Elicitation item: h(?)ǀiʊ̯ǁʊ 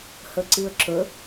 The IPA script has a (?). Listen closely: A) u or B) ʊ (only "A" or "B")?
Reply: B